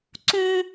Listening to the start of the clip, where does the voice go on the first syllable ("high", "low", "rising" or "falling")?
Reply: high